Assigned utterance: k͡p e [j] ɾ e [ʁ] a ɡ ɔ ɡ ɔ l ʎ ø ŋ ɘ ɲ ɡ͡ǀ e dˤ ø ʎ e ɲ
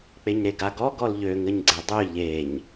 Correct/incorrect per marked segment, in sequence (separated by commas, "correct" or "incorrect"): incorrect, incorrect